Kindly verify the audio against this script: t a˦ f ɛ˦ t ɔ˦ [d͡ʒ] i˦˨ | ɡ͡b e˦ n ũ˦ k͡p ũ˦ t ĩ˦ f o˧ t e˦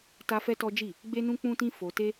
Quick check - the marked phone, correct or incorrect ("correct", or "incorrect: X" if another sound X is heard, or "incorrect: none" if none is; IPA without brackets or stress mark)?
correct